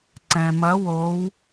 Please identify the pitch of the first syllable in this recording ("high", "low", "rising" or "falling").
low